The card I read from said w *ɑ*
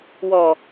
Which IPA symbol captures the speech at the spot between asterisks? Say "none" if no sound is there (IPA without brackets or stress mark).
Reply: ɔ